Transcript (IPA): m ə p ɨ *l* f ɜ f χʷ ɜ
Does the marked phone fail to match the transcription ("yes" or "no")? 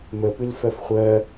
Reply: no